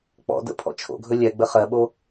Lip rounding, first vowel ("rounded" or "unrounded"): rounded